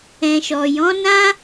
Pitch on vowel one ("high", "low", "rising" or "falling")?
low